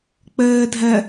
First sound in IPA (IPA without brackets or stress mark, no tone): k͡p